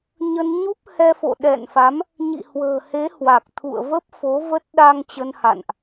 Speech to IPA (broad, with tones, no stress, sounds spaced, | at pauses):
ɲ ə˧ n ɲ u˦˥ p̚ h ɛ˧ f o̰˧˨ ɗ ɛ̰˧˨ n f a˨˦ m | ɲ ḭ˧˨ h w ə̤ː˨˩ h e˨˦ h w a˨˩ k̚ t̪ʰ ṵ˧˨ ə̯ v ə˦˥ p̚ f o˨˦ v ə˦˥ t̚ ɗ a˧ ŋ t͡ɕ ə˧ n h a̰˧˨ n ʔ